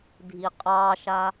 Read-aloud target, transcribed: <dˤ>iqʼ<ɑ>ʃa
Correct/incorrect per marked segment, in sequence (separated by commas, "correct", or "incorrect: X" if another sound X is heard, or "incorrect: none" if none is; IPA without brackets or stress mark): incorrect: dʱ, correct